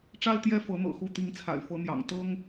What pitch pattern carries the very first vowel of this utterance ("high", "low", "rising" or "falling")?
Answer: high